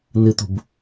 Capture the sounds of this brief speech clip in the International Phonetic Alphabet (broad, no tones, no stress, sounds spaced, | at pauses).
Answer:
n ɨ t̪ ṳ b